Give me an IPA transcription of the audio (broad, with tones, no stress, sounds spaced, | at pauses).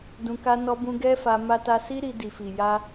d ũ˧ k a˦ n ɔ˧ b ũ˧ ɡ ɛ˦ f a˧ m a˧ t a˧ s i˦ ɾ i˧ d i˨ f i˨ j a˧